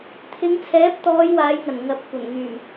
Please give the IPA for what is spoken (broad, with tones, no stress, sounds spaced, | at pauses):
t̪ʰ ɪ˨˧ ŋ t͡sʰ ɛː˨˥ p̚ t̪ ɔː˨˧ j w aː˨˧ j ŋ ɐ˨˩ n ŋ ɐ˨ p̚ kʷ ɐ˨˩ n ŋ yː˨˩ m